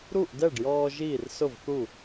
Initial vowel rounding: rounded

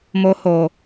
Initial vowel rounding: rounded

